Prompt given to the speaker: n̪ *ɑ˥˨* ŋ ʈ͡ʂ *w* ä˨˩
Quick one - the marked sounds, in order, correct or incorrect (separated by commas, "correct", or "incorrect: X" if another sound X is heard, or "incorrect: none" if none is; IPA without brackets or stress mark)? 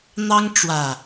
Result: incorrect: ɑ˦, correct